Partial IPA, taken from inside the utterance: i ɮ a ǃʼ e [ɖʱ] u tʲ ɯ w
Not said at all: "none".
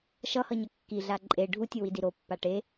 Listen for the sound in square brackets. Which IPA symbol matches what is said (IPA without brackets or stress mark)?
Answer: ɖʱ